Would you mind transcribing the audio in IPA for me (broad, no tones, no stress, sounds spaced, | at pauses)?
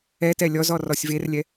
ɛ t ɛ lʲ ɔ z ɔ r ɔ sʲ v e r lʲ ɛ